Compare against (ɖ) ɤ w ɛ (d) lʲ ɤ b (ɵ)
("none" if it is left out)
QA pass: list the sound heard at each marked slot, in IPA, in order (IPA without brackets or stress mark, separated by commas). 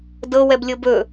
d, b, ɵ